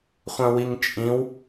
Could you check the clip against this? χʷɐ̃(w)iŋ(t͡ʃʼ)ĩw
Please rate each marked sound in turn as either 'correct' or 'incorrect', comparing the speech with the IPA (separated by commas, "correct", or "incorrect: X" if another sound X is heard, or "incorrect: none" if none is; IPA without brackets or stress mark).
correct, correct